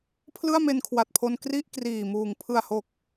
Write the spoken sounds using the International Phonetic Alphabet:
pʰlɯ˥˩a̯me˧nkʰwa˨˩t̚pʰo˧n kri˥˩ʔ kriː˨˩muː˩˦ŋ pʰɯ˨˩a̯ho˨˩k̚

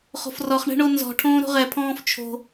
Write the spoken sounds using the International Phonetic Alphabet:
χo̤frɔχɳɛ̤ ɳonzɔ̤ʈʰõː ɾo̤ʁɛpʰɔ̃ːf t͡ʃʰo̤

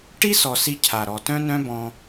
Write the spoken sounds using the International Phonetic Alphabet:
ʈi˦ sɔ˨si˧ cʰa˨ ɾɔ˨tœ̃˦nœ̃˦bɔ̃˧

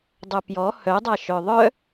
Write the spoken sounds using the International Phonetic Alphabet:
dˤœpjɔ hœdˤa ʃœðˤœ

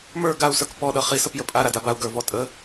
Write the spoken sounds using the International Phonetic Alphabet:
mə˞ ɡau̯sə˞k pɔɗʌ χisəp jəpʼa ɾadabau̯ ɡə˞vɔtʼə

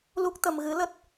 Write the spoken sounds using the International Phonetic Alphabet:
lu˦˥k̚t̪ə˧m ɣɨ˨˦lə˦˥t̚

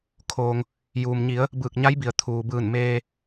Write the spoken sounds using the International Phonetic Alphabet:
kʰoː˩ŋ | juː˩m ɲi˩˧ə̯ | bɯː˧˩k̚ɲa˧˥jbi˩ə̯ t̪ʰuː˩bɯː˧˩nmeː˧

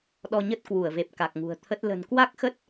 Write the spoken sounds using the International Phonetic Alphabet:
ɗɔ˧ɲə˦˥t̚ kwu˧˩ə̯ve˨˩p̚ ka˨˩k̚ŋṳ˨˩ə̯t̪ʰə˦˥t̚ lə̤˨˩nkwa˦˥k̚xə˦˥t̚

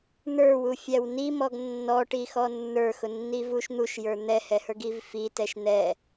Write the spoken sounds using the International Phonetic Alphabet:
n̪ə˞wu fʲæwnimɔɡ nːɔʈi xɔnːə˞xʊ nːivuʃn̪uʃ jə˞n̪ɛhɛhə˞ɡ ivfi tɛʃn̪ɛ

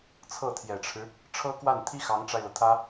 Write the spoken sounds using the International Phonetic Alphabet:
t͡sʰɤ˥˩t̪ʰjɛ˨˩ʈ͡ʂʰɻ̩˦ | ʈ͡ʂʰɤ˥kwa˥˩nt̪ʰi˥ xɑ˧˥ŋʈ͡ʂa˧ɪ̯lɤ˩t̪ʰä˥

